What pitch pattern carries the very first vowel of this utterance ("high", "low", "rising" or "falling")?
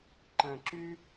low